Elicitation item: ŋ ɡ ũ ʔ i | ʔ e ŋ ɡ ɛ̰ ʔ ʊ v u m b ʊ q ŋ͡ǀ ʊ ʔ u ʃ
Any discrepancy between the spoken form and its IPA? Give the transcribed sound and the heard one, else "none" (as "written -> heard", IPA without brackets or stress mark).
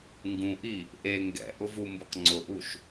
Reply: none